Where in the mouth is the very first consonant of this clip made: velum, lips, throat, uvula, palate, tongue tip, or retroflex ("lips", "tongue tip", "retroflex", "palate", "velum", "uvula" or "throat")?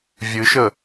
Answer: lips